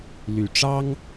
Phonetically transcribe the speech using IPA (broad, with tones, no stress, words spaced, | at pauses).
ly˨˩ ʈ͡ʂɑ˥ŋ